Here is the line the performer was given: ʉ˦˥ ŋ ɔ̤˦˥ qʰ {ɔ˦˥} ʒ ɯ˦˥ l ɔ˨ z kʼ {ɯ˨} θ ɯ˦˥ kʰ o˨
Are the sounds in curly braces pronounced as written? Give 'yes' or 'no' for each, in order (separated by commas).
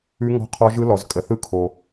yes, no